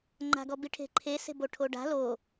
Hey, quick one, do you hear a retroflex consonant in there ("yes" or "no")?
yes